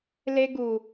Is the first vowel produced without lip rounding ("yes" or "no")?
yes